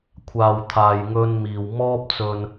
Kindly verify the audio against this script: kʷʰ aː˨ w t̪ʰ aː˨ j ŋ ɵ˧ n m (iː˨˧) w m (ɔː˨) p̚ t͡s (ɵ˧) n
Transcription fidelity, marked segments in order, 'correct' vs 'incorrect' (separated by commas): incorrect, incorrect, incorrect